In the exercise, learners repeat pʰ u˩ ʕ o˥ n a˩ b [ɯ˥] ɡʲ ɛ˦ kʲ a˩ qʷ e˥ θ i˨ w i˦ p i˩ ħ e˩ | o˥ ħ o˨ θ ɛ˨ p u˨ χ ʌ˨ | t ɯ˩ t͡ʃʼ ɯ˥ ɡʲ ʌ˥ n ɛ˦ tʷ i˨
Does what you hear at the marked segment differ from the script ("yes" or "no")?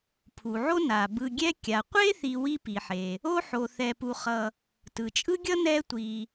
yes